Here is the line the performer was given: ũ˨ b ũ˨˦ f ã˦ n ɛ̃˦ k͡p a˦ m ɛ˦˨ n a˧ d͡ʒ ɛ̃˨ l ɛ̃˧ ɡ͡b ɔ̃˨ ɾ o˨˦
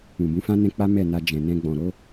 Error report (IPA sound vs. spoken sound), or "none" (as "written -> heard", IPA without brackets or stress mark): l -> n